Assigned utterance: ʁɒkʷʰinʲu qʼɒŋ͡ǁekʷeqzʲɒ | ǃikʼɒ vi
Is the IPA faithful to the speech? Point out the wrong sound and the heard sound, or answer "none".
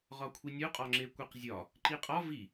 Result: kʼ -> qʼ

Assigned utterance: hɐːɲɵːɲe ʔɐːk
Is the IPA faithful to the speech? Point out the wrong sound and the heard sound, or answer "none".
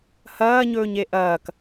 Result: none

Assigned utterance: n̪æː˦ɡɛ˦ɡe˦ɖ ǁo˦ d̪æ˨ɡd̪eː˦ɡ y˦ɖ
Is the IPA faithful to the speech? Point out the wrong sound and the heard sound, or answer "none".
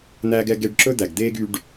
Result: o˦ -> ɵ˦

